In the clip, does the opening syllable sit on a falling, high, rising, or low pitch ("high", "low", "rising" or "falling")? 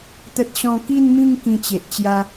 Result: high